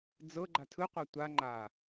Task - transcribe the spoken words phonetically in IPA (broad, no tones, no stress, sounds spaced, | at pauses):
d͡z ɤ ɡ͡ǃ a tʰ ɯ qʷ a tʷ a ŋ͡ǃ a